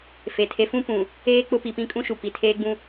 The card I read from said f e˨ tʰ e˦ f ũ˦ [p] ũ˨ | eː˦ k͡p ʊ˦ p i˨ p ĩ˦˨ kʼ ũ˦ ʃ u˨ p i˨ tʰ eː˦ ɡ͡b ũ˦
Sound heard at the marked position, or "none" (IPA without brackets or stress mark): p